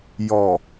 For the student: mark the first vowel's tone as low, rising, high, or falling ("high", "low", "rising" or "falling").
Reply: low